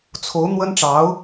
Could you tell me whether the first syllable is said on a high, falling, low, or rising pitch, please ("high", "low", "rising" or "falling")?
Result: rising